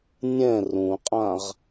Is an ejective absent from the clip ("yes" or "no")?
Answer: no